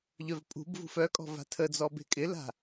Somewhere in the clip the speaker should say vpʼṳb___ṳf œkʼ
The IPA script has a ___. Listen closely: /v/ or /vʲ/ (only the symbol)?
v